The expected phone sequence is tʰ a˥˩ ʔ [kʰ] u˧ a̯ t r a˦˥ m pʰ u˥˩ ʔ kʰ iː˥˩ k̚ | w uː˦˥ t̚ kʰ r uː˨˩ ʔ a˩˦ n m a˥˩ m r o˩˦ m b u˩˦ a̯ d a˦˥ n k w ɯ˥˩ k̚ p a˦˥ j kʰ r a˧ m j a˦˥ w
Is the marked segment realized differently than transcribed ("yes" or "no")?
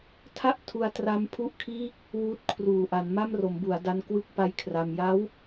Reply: yes